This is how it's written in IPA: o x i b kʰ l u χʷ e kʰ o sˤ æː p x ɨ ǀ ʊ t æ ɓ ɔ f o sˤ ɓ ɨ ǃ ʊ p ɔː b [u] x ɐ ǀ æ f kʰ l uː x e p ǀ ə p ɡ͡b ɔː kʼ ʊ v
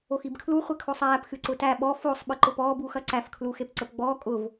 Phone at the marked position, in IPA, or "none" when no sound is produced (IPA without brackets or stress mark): uː